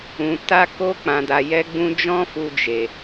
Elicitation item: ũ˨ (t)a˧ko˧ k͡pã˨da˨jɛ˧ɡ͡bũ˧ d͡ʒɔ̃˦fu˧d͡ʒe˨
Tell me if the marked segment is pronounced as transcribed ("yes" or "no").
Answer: yes